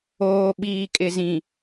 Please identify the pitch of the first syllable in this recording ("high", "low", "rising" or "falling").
low